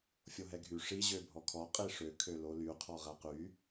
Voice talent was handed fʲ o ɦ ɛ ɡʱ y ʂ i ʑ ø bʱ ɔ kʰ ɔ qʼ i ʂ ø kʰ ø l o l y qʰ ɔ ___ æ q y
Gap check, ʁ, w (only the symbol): ʁ